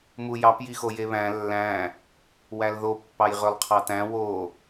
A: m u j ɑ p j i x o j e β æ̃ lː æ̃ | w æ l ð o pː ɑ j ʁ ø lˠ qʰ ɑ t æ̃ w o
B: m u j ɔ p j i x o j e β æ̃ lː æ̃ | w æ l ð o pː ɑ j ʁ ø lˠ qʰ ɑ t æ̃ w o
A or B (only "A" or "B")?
A